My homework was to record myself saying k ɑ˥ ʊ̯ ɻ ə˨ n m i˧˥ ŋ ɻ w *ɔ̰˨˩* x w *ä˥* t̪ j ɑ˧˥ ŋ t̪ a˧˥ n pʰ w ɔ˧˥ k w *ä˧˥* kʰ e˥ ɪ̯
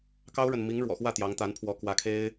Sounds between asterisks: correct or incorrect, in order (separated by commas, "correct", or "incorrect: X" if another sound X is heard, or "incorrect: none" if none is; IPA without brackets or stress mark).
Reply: correct, incorrect: ä˥˩, correct